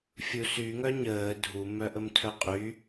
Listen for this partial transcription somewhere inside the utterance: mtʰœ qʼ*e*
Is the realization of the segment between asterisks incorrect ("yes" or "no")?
yes